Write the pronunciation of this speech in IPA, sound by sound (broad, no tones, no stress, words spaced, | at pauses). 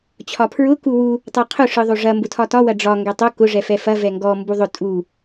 t͡ɕʰɒpʰɹʊ kuwu | tˤɛqʰʊ ʂɯðˤoʐɐ mbʊtʰɒtɒ wɐɖ͡ʐɒ ŋɡɛtˤo kʊ ʐɛfɛfɐ vɛŋɡɔ mbuðˤʊ tʼu